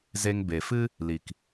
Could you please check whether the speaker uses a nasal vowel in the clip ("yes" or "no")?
no